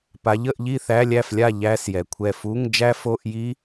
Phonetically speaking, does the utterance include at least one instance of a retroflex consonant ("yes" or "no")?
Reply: no